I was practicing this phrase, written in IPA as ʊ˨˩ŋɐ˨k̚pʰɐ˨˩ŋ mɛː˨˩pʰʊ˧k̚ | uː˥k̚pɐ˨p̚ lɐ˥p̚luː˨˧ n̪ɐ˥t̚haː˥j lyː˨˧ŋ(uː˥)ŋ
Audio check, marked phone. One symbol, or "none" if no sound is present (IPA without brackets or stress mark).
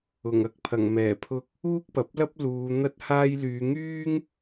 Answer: yː˥